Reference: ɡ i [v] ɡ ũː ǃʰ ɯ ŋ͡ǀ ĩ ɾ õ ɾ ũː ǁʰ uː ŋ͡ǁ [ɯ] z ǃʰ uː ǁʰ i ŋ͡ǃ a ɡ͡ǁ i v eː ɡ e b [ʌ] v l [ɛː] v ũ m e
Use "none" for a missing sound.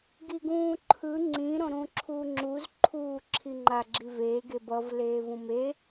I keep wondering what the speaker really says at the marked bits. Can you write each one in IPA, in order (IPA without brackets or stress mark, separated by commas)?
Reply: none, u, ʌ, eː